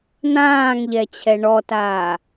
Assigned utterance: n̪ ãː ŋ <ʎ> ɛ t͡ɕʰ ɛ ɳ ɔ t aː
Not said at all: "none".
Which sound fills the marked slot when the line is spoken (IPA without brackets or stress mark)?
ʎ